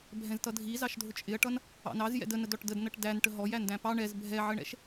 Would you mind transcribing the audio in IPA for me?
bʱ ɛ̃ z t ʌ dʱ i z ɑ ʃ dʱ ʊ t͡ʃʼ ɪ ɐ̯ ʈ ʌ n | ɑ̰ n ɑ z j ɛ̰ d ə n ə d ɔ ʈ d ə d n ʌ ʈ d æ n ʈ ə ɦ ɔ j æ n d æ̃ p ɑ ɳ ɛ z bʱ ɛ ʕ ə ɳ ɛ̰ ʃ

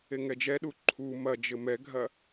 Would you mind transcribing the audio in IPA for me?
e ŋ ɛ d͡ʒ ɛ ɗ u ǃʰ u m ɐ d͡ʒ ɘ m ɛ ɡʱ ɐ

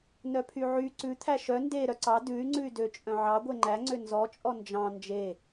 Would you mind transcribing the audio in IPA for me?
n œ pʰ y ʕ y ǀ ʉ t̪ʰ æ ʃ œ n d e ɾ œ ǀ ɑ d ʉ y̯ ŋ͡ǀ ʉ y̯ d ø t͡ʃʼ œ̃ ʕ ɑ ɡʷ e ŋ͡ǃ æ ŋ͡ǀ ø n z ɔ t͡ʃʼ ɔ n d͡ʒ ɑ̃ n d͡ʒ e

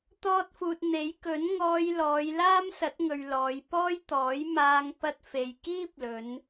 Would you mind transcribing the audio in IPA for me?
t̪ ɔː˥ t̚ f uː˧ t̚ n̪ e˨˥ j k ɵ˨˥ n ŋ ɔː˧ j l ɔː˨˧ j l aː˥ m s ɐ˨˥ t̚ ŋ ɵ˨ ɥ l ɔː˨˧ j p ɔː˥ j t̪ ɔː˨˥ j m aː˧ ŋ p ɐ˧ t̚ f e˨ j k iː˥ p̚ l ɵ˨˧ n

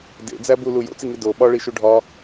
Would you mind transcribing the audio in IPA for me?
d ḛ d͡z æ b u l u j o̰ t͡s i ŋ i d o ɓ ɒ ɭ i ʃ u ɖʱ ɒ

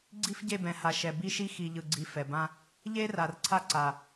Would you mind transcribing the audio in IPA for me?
ɡ͡ǀ i˦ f ɟ e˦˨ b ɛ̃˨ h a˨ ʃ ɛ˨ b i˦ ʃ i˦ x i˨ ʎ ɯ˨ ɡ͡ǀ i˨ f ɛ˨ b ã˦ | ʎ e˦ r a˨ r ǀʰ a˦ ǀ a˨

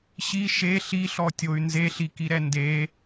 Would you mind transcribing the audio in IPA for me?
ɕ i ʃ e ɬ i ɬ ɔ tʲ o y̯ n z e ɬ i k i ɾ ɛ n d e

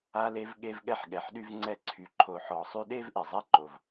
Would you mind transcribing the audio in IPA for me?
a˦ l e˦ v ɠ e˥ v ɠ ɛ˥ ħ ɠ ɛ˨ ħ ɗ y˦ v ŋ͡ǀ ɛ˦ ǀʰ y˨ ǃʰ o˨ ħ ɔ˨ sˤ y˦ ɗ e˥ v ʔ e˩ zˤ ɛ˥ ǃ o˩ v

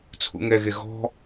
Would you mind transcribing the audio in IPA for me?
t͡sʰ ṵ ŋ ɛ ɣ e ɣ ɔ̤

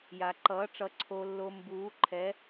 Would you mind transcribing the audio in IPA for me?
j a˨ ǃ ʌː˨˥ ʈ͡ʂ ʌ˨˥ ǀʰ o˨ lː o˨ m b uː˨˥ ǃʰ ɛ˨˥

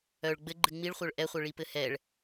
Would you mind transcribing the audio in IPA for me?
œ ɭ ɡ͡b ɘ ɡ͡ǃ ɨ ŋ͡m i ɭ χʷ œ ɭ ʔ ɛ χʷ œ ɭ i p ɘ h ɛ ɭ

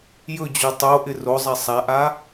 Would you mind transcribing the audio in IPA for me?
j ɵ d͡ʑ o tˤ o ʔ ɪ r o zˤ ɛ sˤ a ʔ a

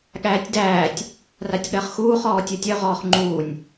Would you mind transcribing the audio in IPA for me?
ɠ æː tʲ d æː tʲ | r a tʲ ɠ ɜ χ x uː χ ɔː tʲ œ tʲ œ ʁ ɔː χ ŋ͡ǃ uː nʲ

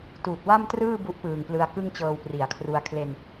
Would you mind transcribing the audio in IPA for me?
t uː˨˩ t̚ w a˥˩ m t r ɯː˥˩ b u˦˥ ʔ p ɯː˨˩ ŋ p l ɯ˧ a̯ k ɯ˥˩ ŋ t͡ɕ ɤː˧ w p r i˩˦ a̯ kʰ r u˧ a̯ kʰ l e˧ n

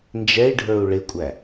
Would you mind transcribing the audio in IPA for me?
n d͡ʒ ɛ i̯ ɖʱ ə˞ u̯ ɭ ɪ kʷʼ æ

